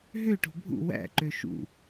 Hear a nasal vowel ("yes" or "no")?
no